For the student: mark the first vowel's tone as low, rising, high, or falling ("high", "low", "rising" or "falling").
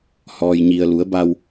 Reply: low